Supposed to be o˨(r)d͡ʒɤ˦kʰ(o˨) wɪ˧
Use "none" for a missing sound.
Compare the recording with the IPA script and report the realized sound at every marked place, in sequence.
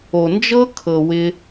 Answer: n, ɤ˨

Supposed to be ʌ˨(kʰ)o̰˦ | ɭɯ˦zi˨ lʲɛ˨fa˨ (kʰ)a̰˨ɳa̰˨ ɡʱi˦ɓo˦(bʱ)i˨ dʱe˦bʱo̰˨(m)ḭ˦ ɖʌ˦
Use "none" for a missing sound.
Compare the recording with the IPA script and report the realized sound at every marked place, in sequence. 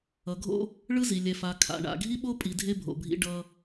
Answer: ɡʱ, kʰ, pʼ, bʱ

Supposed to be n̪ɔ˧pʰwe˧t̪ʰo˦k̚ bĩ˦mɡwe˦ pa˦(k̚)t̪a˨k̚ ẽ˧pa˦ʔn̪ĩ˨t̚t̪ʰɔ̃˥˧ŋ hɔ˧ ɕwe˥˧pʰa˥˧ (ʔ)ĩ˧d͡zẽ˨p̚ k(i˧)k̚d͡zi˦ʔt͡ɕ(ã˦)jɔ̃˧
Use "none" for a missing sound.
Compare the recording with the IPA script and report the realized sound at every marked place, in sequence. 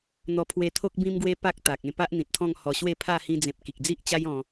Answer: k̚, h, i˨, a˦

